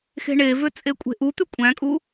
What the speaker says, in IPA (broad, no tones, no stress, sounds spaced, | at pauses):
x e̤ ɳ e v ø t͡sʼ e kʷʼ e̤ ʔ u t̪ y kʷʼ æ̃ kʼ u